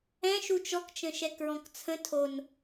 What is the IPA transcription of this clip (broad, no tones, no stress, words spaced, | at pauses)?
ɛ̃ ʃut͡ʃɔk t͡ʃə̃ʃɛkɹɔ̃kt͡sʰə̃ tʰon